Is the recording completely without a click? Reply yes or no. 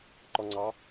no